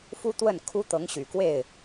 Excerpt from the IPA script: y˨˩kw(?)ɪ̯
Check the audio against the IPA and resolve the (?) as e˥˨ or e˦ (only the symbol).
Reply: e˥˨